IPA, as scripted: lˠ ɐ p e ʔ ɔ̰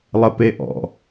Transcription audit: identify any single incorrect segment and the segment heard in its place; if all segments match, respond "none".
none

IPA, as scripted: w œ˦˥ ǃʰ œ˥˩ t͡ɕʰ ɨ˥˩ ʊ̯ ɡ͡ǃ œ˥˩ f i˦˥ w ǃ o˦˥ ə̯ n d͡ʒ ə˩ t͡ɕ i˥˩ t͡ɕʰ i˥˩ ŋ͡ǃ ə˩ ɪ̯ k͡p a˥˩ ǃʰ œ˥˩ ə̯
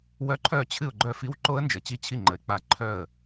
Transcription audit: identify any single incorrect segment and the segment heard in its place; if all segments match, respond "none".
none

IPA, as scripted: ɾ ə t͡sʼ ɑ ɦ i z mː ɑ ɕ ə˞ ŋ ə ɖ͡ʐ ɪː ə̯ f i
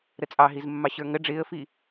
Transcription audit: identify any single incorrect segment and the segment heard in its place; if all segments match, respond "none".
none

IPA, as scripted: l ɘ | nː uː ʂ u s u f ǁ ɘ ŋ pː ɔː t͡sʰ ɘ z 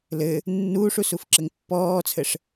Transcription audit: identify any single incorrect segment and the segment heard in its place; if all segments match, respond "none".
z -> ʂ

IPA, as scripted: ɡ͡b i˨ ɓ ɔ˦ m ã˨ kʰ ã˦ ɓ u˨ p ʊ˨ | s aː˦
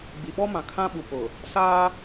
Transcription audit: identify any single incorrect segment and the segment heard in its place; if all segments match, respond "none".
none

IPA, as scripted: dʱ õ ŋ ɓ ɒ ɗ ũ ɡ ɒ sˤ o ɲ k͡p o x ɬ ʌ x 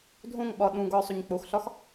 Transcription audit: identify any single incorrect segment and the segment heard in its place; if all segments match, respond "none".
ʌ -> ɒ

